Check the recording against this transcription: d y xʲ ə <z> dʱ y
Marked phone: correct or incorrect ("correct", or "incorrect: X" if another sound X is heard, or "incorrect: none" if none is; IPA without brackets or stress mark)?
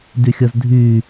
correct